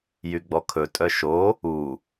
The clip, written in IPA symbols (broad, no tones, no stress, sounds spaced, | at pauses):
j y ɡ͡b ɔ kʰ ɵ tʼ œ ʃ o | u